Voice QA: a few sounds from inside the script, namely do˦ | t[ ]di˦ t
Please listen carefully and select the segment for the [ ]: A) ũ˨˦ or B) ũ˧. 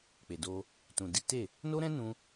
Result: B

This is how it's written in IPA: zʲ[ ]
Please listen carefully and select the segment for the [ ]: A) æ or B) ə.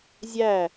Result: A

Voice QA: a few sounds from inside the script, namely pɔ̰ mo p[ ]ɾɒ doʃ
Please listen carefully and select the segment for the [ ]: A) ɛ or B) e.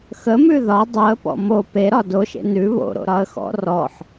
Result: B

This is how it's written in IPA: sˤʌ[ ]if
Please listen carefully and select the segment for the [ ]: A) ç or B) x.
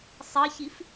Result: A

